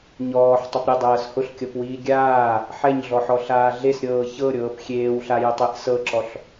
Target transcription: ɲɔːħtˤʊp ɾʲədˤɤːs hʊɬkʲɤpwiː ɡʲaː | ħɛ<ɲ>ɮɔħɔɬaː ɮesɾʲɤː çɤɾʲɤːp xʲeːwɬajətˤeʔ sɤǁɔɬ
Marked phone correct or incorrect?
correct